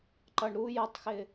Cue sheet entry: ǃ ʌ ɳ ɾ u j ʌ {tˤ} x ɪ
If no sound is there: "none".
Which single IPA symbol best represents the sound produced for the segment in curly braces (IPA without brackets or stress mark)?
tˤ